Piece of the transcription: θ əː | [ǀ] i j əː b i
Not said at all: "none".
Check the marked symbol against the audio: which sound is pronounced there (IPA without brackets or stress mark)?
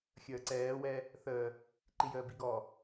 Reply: ǃ